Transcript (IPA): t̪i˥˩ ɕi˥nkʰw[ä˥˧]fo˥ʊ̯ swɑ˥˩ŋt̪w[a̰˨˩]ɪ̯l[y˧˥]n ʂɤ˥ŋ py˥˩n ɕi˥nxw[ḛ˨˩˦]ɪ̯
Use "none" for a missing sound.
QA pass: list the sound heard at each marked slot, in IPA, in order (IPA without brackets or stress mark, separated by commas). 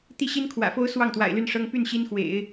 ä̰˨˩, a̰˨˩, y˥˩, ḛ˨˩˦